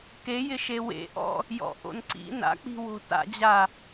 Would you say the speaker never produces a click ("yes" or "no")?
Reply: no